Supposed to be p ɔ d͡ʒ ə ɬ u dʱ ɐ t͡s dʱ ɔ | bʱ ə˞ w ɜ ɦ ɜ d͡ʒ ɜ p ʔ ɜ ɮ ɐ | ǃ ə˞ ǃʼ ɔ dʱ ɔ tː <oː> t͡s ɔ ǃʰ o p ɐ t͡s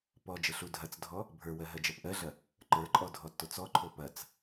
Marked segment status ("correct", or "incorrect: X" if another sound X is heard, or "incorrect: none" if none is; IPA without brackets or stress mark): incorrect: o